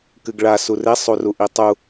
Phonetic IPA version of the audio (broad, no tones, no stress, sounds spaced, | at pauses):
k ɨ ɡ ɭ a s u r e sˤ u r u ʔ i tˤ u